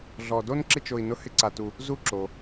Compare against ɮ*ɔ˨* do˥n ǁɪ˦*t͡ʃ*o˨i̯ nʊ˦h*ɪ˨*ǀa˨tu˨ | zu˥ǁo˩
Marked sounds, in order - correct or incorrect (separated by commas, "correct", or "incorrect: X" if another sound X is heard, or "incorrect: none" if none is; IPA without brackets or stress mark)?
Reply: correct, correct, incorrect: ɪ˥